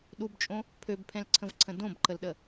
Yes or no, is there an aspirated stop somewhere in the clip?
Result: yes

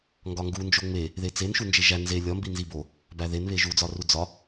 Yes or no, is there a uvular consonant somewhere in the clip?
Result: no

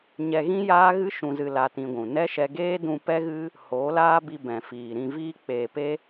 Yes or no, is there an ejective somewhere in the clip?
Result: no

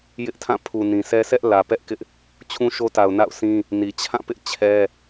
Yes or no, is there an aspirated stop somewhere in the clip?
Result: yes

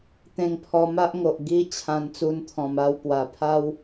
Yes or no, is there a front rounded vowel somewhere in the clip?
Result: no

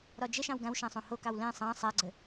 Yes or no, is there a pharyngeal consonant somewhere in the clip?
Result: no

